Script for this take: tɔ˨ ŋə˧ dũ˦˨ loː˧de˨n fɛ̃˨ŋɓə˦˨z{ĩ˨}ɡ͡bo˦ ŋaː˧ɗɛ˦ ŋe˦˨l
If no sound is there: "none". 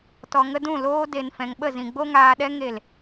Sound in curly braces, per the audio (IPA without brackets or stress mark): ĩ˨